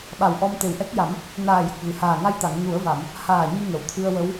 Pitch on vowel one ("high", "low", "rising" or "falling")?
low